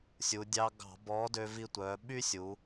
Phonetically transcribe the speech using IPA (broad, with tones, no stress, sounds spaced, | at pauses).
sʲ u˩˧ dʲ ɑ˧ ɡ ɑ̤˧˩˧ b ɔ˨˥ d ø˧ v i˧ tʷ œ˩˧ ɓ y˥ sʲ u˩˧